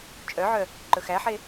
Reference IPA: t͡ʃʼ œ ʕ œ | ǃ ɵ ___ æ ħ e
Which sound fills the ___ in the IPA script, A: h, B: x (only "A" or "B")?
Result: B